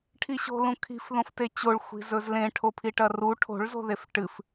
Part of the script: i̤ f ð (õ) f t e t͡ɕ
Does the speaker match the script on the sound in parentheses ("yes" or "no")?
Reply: yes